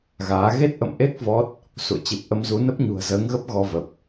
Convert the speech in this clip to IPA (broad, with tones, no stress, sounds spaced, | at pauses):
ɣ aː˨˦ ɣ e˦˥ t̚ ʔ ə̰˧˨ m ʔ e˦˥ k̚ v ɔ˦˥ t̚ | s ṵ˧˨ ə̯ t͡ɕ i˨˩ p̚ ʔ ə˧ m z u˨˦ n ə˦˥ p̚ ɲ ṳ˨˩ ə̯ z əː˨˦ ŋ ɣ ə˦˥ p̚ ɣ ɔ˧ v ə˨˩ p̚